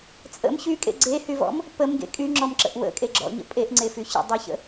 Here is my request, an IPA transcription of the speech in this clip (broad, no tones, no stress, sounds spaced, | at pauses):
t͡sʼ ə̰ m ç y kʼ ḛ ɡ͡ǀ e h y v ɔ̰ m | p ə m ɡ ḛ kʼ y ŋ͡ǁ ɔ m ǁ ə̰ ʔ w ə̰ kʼ e ɡ͡ǁ ɔ̰ ɲ ə̰ pʼ e ʔ ŋ͡ǀ e f y ç ə̰ dˤ y ç ə̰